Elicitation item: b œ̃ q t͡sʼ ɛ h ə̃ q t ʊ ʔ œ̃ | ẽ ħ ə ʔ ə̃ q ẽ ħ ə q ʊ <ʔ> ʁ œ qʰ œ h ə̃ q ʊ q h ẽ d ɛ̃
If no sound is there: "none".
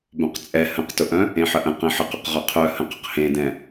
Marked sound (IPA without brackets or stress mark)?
q